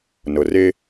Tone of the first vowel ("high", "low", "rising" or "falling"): low